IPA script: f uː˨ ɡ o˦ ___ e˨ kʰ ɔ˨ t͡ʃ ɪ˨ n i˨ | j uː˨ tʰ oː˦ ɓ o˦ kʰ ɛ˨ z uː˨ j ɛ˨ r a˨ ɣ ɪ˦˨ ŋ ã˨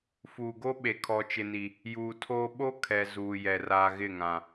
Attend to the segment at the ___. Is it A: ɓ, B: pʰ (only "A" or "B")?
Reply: A